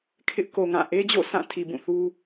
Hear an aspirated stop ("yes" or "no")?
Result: yes